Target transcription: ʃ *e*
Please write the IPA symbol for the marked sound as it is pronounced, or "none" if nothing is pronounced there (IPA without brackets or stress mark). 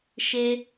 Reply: e